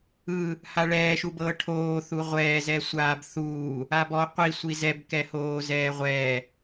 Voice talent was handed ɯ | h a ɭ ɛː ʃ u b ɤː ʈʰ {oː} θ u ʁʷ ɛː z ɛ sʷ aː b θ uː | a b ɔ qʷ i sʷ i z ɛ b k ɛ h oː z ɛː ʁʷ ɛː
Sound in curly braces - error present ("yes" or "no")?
no